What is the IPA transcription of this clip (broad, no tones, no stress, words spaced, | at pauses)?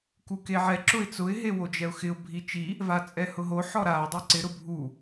kukeʕɛ ǁʊɪ̯t͡sʊɪ̯ ɦewod͡ʒɛʊ̯xɪʊ̯ bʱit͡ʃi | vat͡sʼɛhʊɦo ħɔɾaʊ̯ dˤeǀɪ ɾʊbʱu